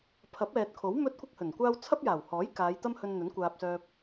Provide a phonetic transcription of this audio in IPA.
pʰ ɐ˨˥ p̚ ɛː˨ t̚ kʰ o˨˥ w m ɵ˥ t̚ kʷ ɪ˥ k̚ h ɵ˨˩ n kʷ aː˥ w t͡sʰ ɐ˥ p̚ j aː˨˩ w h ɔː˨˥ j k aː˨˧ j t̪ ɐ˥ m h ɵ˧ n n̪ ɵ˨˥ n kʷ aː˧ p̚ s œː˧ p̚

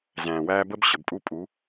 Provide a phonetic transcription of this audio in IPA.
z æ̃ː˨ w æː˦ b ə˦ b ɕ ə˨ b pʼ u˦ pʼ u˨˦

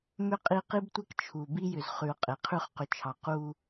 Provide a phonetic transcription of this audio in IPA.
m ʏ˦ qʼ i˦ q i˦ b tʷ ɛ˦ k t͡ʃʰ u˨ b i˦ j ʏ˨ z χ ʉ˨ ʊ̯ qʼ e˨ qʰ ʉ˦ χ q ʏ˨ t͡ʃʰ ɑ˨ q u˦

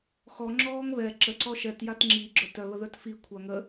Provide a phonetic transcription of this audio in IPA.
x ɔ ŋ͡ǁ ɔː ŋ β ɛ ǁ ə ǀ ɔ ʃ ɛ t j a t ŋ͡ǁ i ɡ͡ǁ œ t œ β ə ð œ t f i kʷʰ a ŋ ə

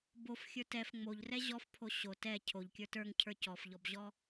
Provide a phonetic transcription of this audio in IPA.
b o f xʲ ə˞ t ɛ f ŋ͡m o ʎ r ɛ ʑ ɔ f pʰ o ɕ o t ɛ cʰ o ʎ kʲ ə˞ t ə˞ ŋ cʰ ə˞ c ɔ f ʎ ɔ b ʑ ɔ

